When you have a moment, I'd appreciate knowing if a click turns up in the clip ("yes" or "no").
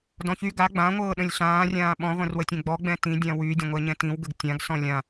no